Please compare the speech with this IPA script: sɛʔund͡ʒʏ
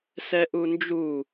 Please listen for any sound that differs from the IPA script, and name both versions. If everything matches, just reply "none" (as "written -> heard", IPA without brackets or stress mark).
ʏ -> u